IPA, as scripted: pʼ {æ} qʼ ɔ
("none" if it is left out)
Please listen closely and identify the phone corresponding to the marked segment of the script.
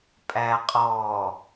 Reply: æ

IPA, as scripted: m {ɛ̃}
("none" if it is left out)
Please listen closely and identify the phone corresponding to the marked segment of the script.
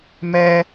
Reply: ɛ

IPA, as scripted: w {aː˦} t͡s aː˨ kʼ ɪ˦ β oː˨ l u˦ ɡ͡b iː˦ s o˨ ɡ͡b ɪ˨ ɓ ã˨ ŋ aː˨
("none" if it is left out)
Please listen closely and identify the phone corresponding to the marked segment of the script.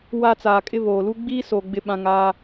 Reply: a˦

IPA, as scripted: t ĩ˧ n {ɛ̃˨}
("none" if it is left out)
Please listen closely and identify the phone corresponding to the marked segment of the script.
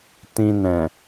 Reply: ɛ̃˨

